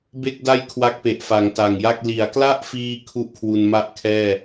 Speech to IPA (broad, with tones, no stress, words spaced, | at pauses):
be˥˩k̚ da˥˩jkʰwa˦˥k̚pe˨˩ʔfa˩˦ŋ ta˨˩ŋja˥˩k̚ li˩˦a̯kla˥˩ʔfiː˧ kʰu˥˩ʔkʰwu˧n ma˥˩ʔkʰɛː˥˩